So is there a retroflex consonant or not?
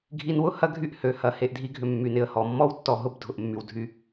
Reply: no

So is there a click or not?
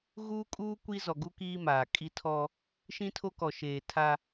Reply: no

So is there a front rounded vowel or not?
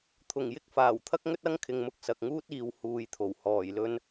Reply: no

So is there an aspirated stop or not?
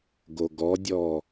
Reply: no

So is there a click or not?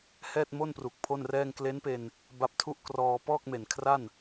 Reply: no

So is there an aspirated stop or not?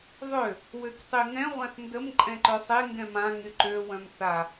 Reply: no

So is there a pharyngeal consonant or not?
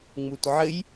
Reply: yes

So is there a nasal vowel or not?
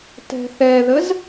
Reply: no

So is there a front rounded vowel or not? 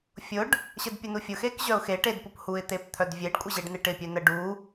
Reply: yes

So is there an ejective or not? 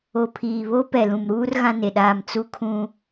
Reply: no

